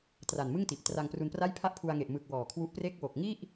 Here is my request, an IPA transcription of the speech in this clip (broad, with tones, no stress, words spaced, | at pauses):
tra˨˩n mɯ˥˩ŋti˨˩ʔ tra˧ŋpru˧npra˥˩jpʰa˥˩ʔ pʰu˧a̯ŋe˨˩ʔ mɯ˨˩k̚ wɔː˨˩kʰwu˦˥ʔpre˥˩k̚ wo˨˩k̚ŋi˥˩ʔ